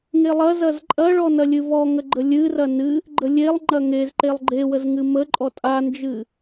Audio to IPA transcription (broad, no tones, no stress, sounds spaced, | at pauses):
ŋ e lˠ ɐ z ɐ z ǃʼ ɐ ɭ ɔ n ɐ lʲ ɨ v ɔ ŋ ə ɡ͡ǃ ə lʲ ɨ r ɐ n ɨ | ɡ͡ǃ ə lʲ e lˠ ŋ͡ǃ ɐ ŋ e z ǃ e lˠ ɡ͡ǃ e w ə z ŋ ɨ m ə ǃʼ ɔ tʼ a n d͡ʒ ɨ